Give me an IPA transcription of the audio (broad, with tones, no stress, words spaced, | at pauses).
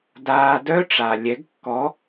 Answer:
daː˩ dœ˦˥ʈ͡ʂa˩ lʲɛ˩˧ɡkːɔ˩˧